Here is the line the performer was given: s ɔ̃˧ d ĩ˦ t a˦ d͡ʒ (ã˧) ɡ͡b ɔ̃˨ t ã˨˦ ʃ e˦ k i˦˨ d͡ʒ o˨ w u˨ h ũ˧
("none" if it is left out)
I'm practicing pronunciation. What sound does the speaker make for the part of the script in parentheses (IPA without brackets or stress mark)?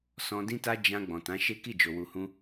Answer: ã˧